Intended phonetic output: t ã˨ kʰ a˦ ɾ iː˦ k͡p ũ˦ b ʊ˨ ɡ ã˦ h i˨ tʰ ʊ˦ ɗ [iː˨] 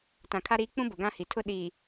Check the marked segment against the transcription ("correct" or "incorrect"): correct